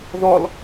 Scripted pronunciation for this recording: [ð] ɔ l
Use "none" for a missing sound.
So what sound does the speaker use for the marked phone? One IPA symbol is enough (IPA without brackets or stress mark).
ð